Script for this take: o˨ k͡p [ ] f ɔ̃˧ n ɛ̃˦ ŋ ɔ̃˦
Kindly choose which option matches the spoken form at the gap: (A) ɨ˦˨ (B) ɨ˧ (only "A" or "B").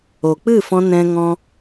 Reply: A